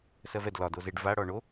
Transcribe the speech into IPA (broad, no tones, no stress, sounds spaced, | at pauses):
s ɜ v ɛ d l ɒ d o z e ɖ v a ɽ ɔ ɳ o